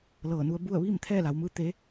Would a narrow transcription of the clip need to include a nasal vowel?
no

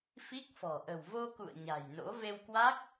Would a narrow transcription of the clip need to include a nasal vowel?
no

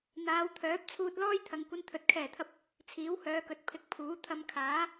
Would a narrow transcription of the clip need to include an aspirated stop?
yes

